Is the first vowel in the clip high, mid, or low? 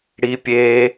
high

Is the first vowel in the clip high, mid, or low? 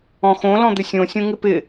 mid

